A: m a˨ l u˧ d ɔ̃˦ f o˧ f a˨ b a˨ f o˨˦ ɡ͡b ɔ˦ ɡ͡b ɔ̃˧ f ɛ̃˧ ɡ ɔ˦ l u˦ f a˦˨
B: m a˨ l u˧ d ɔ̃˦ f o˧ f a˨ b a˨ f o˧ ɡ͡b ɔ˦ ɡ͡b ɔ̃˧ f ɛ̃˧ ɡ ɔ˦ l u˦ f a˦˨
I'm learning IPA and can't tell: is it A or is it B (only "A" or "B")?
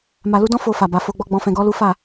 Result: B